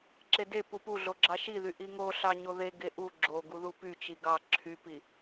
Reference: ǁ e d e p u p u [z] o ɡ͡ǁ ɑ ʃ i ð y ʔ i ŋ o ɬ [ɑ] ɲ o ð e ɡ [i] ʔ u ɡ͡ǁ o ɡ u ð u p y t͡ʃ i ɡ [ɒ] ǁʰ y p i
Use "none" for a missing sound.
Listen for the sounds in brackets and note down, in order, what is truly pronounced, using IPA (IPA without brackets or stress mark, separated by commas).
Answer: ɮ, ɑ, e, ɑ